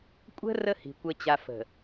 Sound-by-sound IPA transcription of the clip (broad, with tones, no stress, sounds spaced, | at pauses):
kʷʼ ə̤˦ r ə˦ h i̤˨ kʷ ə˨ t͡ɕ a˨ f ə̤˨